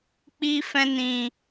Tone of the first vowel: high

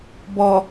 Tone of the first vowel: low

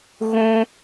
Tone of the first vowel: high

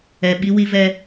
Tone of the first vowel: low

